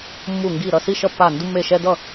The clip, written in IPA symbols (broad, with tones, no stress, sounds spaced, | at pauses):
mː u˥˧ ŋ ɡ i˥˧ ɾ ʌ˥˧ s i˥˧ ʃ ʌ˥˧ pː a˥˧ n d u˥ mː e˥˧ ʃ ɛ˥ d ʌ˥˧